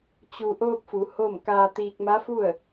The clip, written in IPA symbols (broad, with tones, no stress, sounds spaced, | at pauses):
t͡ɕ u˧ ʔ oː˧ p̚ f u˩˧ h o˥˨ m k aː˧ t̪ iː˧ k̚ m a˧˥ f u˥˨ ə̯